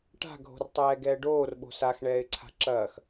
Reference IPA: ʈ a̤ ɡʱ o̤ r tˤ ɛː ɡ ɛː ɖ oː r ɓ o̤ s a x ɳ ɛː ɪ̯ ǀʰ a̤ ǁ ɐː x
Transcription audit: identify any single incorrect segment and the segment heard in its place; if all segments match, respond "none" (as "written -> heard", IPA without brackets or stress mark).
none